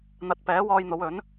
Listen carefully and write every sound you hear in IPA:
n̪ ɐ˨ t̚ p ɛː˨˥ w ɔː˧ j n̪ o˨˧ w ɵ˨˥ n

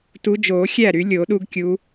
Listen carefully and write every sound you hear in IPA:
t u˨˦ d͡ʒ o˨˩˦ xʲ æ˥˩ ɾ y˨˩˦ lʲ o˨˩˦ ɗ u˦ ɡ kʲ u˨˦

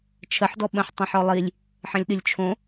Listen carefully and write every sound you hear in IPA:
t͡ʃʰ ə ħ d ɔ ɓ ə̃ ħ tˤ ə̃ ħ ɔ lˠ i lʲ | ħ ə̃ lʲ ɗ ɨ lʲ t͡ʃʰ õ

